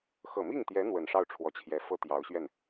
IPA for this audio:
x ɤ˨˩ m i˥˩ ŋ t̪ j ɛ˧˥ n̪ w ə˨˩ n ʂ ɑ˥˩ ʊ̯ ʈ͡ʂʰ w ɔ˧˥ t͡ɕʰ j ɛ˧˥ f ɤ˥ t̪ j ɑ˧˥ ʊ̯ ɕ ɥ ɛ˥˩ n

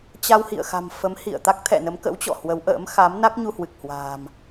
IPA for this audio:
t͡ɕ a˧ w h ḭ˧˨ ə̯ x a̤˨˩ m f ə˨˦ m h ḭ˧˨ ə̯ t̪ a˦˥ k̚ t̪ʰ ɛ̰˧˨ n ə˨˦ m k ə̰˧˥ w t͡ɕ ɔ̰˧˨ h w ə˨˦ w ʔ ə̰ː˧˥ m x a˨˦ m n a˦˥ k̚ ɲ u˧ h w ɨ˨˩ k̚ h w a̤ː˨˩ m

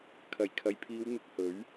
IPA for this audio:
kʰ ɐ˨˩ j kʰ ɐ˨ j pʰ iː˨˧ w n̪ ɪ˧ k̚ h ɵ˨˥ ɥ

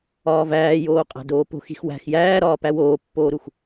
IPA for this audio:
ɒː v æː j oː qʼ æ̤ d oː p o̤ x i̤ x w æ̤ x j æː ɾ ɒː p æ w oː pː oː ɾ u x

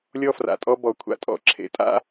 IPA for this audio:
lʲ ɔ˦ f r a̰˨ tʼ ɔ˦ b ɔ˨ kʷʰ a̰˧ tʼ ɔ̰˦ ǁʰ ḛ˧ tʼ a̰˦

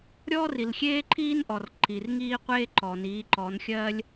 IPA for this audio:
ɾʲ ɔː˦ r i˩ l xʲ eː˦ ǃʰ iː˦ n ʔ ɔ˩ r ǃ i˩ r ŋ iː˦ qʷ eː˦ ǃ ɔ˩ n iː˩˧ ǃ ɔ˩˧ n xʲ ɜː˦ lʲ

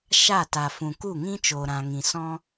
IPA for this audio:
ʃ a˦˨ t a˨ f ũ˨ k u˦˨ ŋ ĩ˦ t͡ʃ oː˨ ɾ ã˨ ŋ ĩ˨ s ɔ̃˦

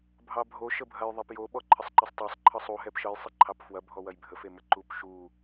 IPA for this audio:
bʱ ɑ bʱ o ʃ ə bʱ ɐ j ðˤ e p j o ɓ ɔ ǃʰ ə sˤ ǃ ə sˤ tˤ ɑ sˤ ǃʰ ɤ sˤ u ɦ ɛ p ʃ ɤ j sˤ ɪ ǃʰ ɑ p f w ɐ bʱ ɔ w ɐ j bʱ ə f e m ə ǃ u p ʃ u

